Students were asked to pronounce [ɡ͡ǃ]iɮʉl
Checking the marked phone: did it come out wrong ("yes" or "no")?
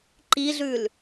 yes